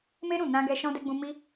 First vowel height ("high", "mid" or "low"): mid